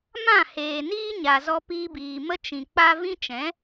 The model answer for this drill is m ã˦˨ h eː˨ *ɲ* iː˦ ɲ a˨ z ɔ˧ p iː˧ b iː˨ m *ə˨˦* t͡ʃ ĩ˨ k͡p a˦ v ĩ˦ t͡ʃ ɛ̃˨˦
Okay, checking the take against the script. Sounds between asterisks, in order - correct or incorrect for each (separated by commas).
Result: incorrect, incorrect